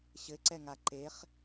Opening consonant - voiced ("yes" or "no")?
no